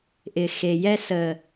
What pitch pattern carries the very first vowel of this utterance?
low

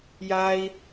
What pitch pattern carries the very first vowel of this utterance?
high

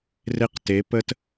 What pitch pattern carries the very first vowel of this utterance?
high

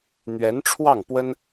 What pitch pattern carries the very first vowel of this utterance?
rising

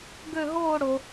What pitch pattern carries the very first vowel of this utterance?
falling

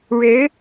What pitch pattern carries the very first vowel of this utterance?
rising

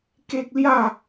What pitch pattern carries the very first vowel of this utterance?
high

